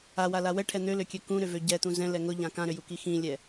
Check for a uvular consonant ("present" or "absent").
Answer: absent